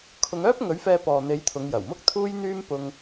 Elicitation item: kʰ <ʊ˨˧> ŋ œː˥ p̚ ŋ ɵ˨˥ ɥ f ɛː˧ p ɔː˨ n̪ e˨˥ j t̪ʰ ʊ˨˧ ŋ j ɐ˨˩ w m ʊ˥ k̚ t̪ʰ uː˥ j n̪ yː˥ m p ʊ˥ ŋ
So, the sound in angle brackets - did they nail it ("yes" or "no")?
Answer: yes